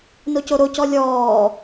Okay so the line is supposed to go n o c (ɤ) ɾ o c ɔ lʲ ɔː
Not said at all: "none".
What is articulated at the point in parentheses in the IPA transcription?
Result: o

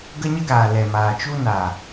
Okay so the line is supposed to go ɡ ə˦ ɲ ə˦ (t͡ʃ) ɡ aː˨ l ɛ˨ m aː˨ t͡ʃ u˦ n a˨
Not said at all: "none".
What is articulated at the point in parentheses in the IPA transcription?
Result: none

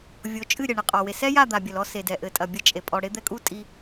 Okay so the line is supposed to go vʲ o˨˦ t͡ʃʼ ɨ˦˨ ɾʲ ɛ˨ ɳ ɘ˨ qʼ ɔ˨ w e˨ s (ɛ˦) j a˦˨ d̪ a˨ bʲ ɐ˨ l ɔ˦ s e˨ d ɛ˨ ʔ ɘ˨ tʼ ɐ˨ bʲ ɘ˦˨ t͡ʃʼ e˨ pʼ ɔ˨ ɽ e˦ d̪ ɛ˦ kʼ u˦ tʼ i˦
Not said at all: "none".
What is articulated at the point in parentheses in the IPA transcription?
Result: ɛ˦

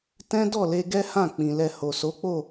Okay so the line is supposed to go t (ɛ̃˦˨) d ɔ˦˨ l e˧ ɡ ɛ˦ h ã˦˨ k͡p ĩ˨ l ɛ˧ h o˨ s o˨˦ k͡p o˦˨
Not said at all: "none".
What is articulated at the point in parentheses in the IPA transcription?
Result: ɛ̃˦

